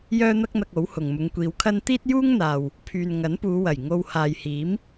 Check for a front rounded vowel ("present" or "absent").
present